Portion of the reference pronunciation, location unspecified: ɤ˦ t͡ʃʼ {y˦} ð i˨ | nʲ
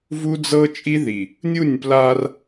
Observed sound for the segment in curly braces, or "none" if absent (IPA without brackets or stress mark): i˦